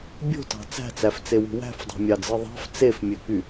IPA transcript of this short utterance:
bʲ o̤ t ɑ̤ t͡s æ̤ t͡s æ f t͡s e w ṳ w æ̤ f dˤ o̤ mʲ ɑ d͡z ɯ ðˤ ɑ̤ f t͡s e f mʲ ø k y

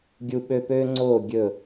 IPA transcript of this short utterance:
ɡʲ u˦ ɓ ø˦ p øː˦ ŋ͡ǀ oː˦˨ ɡʲ ɵ˦˨

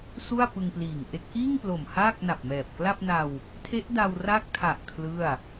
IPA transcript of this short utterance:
s u˥˩ a̯ p ɯ˧ ŋ p l iː˨˩ ŋ ʔ e˦˥ k̚ ʔ iː˥˩ ŋ p l o˨˩ m h aː˥˩ k̚ n a˨˩ p̚ m ɛː˨˩ p̚ k l a˥˩ p̚ n a˧ w | tʰ e˦˥ ʔ d a˧ w r aː˦˥ k̚ tʰ a˨˩ ʔ kʰ l ɯ˥˩ a̯

